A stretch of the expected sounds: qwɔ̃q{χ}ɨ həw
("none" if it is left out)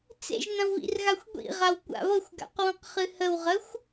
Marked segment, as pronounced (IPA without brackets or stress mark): χ